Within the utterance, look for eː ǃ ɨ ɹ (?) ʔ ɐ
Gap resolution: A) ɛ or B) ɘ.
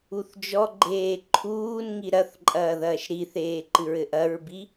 B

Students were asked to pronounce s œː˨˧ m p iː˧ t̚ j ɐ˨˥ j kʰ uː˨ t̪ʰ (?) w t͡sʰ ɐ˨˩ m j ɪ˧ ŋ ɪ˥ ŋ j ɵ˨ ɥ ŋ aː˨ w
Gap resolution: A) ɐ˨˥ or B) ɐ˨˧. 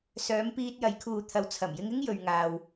A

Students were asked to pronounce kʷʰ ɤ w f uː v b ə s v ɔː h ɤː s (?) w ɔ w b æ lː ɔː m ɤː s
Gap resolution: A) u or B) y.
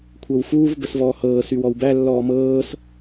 B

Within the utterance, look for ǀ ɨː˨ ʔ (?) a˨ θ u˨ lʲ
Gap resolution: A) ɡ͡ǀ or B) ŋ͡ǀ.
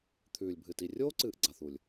A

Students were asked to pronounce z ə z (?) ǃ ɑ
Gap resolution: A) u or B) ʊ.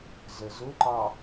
B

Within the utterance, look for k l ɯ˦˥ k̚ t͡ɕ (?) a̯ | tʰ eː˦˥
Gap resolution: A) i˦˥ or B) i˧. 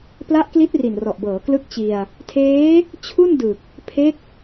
B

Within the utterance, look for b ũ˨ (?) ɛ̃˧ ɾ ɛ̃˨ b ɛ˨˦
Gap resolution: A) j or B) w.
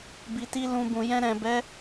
A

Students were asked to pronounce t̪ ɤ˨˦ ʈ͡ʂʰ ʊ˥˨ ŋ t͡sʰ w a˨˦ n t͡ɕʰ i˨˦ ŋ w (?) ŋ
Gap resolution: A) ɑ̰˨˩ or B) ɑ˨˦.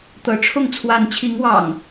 A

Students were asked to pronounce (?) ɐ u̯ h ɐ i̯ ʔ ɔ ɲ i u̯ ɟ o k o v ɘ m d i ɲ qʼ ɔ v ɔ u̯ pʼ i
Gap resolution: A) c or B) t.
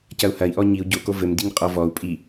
A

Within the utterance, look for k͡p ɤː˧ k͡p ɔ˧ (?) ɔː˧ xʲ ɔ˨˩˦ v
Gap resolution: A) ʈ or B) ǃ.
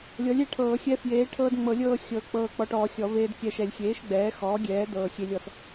A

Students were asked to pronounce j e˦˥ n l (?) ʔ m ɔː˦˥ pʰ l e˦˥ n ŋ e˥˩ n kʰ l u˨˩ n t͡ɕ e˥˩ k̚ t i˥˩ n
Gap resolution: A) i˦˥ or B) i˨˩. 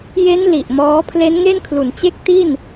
B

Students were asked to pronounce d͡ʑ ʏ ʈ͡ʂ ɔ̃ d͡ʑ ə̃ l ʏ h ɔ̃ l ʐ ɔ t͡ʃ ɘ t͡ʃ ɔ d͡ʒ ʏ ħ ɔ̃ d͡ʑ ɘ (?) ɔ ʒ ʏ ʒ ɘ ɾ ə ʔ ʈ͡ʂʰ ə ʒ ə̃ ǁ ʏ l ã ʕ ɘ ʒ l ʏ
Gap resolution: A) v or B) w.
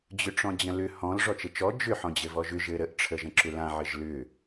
A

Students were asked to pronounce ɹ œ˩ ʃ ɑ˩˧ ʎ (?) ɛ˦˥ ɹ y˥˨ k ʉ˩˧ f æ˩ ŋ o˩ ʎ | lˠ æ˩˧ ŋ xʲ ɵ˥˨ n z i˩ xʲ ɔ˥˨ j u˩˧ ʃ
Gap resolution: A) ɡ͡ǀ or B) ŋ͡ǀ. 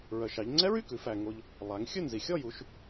B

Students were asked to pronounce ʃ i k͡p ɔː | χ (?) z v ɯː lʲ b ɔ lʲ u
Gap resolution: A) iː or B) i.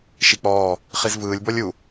B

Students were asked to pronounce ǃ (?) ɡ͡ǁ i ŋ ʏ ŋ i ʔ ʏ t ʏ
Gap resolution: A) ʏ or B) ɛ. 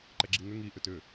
B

